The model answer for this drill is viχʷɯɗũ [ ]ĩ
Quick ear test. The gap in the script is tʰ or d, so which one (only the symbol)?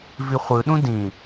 d